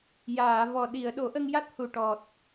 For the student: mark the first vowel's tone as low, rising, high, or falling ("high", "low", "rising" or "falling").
low